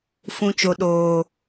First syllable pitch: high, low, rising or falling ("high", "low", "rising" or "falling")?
high